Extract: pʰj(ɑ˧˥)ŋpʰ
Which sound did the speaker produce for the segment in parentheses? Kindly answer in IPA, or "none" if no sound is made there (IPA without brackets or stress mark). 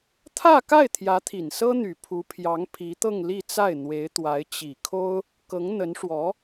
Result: ɑ˧˥